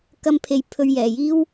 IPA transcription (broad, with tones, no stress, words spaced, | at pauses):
kɐ˧mpʰe˨j pʰɵ˧ɥjɛː˨jiː˥w